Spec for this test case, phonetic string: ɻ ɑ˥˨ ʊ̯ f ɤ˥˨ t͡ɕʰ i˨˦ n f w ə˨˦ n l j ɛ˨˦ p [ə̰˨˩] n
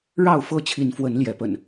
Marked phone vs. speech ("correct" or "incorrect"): correct